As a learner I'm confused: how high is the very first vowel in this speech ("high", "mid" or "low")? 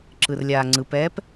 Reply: high